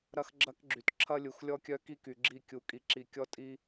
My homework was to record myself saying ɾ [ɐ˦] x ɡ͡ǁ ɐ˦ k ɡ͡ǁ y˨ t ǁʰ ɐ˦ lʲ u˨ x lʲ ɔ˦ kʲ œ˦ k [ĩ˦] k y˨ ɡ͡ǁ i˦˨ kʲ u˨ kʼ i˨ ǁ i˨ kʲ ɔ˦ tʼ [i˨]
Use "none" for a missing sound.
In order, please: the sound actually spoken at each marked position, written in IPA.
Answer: ɐ˦, i˦, i˦

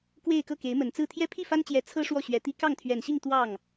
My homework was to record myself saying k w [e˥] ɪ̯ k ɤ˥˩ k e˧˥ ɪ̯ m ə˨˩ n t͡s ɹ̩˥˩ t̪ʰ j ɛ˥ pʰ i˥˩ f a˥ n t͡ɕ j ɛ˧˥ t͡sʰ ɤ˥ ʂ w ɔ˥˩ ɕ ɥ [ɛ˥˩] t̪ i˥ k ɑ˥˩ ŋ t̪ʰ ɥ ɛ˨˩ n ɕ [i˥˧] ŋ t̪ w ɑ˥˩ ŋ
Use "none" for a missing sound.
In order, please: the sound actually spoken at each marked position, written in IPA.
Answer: e˥˧, ɛ˧˥, i˥˧

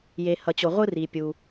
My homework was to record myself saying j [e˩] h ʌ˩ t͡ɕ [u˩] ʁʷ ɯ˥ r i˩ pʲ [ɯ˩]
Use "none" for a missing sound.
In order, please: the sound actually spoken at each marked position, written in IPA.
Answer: e˩, o˩, u˩

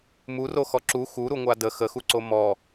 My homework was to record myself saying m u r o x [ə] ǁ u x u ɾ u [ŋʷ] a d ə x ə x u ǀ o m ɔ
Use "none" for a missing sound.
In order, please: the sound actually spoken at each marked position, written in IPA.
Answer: ɔ, ŋʷ

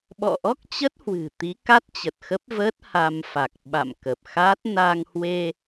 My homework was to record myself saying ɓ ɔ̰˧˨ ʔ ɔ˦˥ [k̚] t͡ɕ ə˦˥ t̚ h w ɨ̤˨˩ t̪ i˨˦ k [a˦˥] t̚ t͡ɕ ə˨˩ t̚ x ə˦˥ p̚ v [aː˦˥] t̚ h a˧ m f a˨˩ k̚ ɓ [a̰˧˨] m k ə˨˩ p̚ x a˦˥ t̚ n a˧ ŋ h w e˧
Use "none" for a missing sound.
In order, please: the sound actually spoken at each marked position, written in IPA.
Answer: k̚, a˦˥, əː˦˥, a̰˧˨

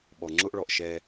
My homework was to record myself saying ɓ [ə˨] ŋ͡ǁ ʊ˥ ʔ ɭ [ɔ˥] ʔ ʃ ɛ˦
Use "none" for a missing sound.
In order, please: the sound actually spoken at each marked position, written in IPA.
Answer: ɔ˨, ɔ˨

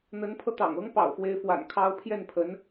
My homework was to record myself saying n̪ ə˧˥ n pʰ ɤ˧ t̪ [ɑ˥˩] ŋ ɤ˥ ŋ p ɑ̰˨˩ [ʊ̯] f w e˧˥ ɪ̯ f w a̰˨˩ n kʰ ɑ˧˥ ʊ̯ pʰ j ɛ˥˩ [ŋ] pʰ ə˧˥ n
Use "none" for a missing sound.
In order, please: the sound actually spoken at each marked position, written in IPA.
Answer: ɑ̰˨˩, ʊ̯, n

